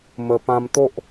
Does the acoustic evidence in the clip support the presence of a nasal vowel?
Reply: yes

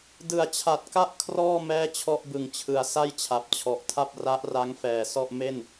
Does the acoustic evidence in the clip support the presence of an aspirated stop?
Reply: yes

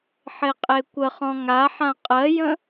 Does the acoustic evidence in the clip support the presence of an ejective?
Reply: yes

